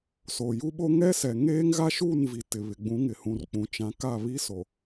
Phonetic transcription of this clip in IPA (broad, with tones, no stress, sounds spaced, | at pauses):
s o˨ j u˦ ɓ o˦ ŋ ɛ˦ s ɛ˨ ŋ eː˦ ŋ ɣ a˦ ʃ uː˦˨ n v i˨ t ɪ˨ β ɪ˨ ɡ͡b ũ˨˦ ŋ ɪ˨ h ũ˨ r k͡p ũ˨ t͡ʃ ã˨˦ k a˦˨ β i˦ s o˨